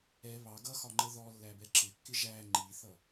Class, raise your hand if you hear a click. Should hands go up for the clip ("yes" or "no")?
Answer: yes